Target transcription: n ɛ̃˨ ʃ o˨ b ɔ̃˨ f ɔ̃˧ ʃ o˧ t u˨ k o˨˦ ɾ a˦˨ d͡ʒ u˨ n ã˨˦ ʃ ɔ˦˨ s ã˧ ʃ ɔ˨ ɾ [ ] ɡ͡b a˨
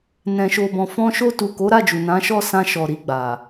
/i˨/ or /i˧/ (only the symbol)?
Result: i˨